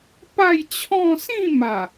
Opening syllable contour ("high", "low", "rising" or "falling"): falling